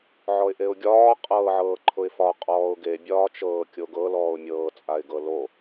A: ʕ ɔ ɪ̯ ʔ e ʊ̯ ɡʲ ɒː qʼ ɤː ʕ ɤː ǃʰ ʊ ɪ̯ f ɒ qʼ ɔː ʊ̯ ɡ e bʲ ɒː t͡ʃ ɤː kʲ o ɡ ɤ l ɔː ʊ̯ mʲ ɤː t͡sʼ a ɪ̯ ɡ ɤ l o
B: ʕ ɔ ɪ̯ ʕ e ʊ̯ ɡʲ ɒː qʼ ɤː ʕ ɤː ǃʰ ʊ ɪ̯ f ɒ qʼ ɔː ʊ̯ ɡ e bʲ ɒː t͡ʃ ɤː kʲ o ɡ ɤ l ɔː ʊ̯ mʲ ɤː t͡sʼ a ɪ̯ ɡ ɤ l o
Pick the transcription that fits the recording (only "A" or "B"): A